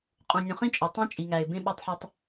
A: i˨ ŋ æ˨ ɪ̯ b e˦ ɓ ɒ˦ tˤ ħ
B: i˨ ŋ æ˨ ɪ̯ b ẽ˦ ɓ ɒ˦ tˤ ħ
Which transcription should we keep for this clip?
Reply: B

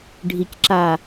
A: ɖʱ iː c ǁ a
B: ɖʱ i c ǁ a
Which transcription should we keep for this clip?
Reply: B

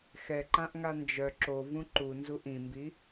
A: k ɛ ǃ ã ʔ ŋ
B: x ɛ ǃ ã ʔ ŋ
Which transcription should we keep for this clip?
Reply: B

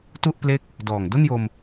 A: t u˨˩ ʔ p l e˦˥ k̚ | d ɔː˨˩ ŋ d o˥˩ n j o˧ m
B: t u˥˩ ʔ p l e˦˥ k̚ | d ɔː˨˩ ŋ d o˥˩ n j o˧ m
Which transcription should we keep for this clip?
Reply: B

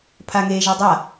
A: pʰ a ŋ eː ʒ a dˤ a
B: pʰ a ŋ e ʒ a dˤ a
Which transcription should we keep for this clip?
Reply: A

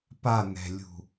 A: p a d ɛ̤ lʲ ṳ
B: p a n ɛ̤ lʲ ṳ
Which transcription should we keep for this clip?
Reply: B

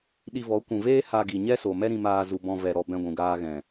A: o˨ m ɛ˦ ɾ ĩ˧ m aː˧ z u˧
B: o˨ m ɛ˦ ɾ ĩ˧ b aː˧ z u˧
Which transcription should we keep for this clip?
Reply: A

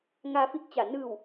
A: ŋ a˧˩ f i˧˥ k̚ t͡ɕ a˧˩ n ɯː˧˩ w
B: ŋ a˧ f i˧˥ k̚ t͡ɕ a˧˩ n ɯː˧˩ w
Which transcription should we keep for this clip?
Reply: B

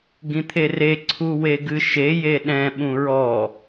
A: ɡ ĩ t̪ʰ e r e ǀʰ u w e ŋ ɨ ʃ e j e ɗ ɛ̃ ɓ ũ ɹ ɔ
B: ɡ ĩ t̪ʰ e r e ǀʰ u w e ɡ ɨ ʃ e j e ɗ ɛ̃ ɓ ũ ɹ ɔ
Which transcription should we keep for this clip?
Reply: B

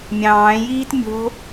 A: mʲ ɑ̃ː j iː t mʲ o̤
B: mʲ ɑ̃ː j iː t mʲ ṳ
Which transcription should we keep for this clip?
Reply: A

